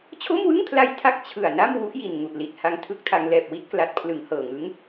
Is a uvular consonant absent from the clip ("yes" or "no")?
yes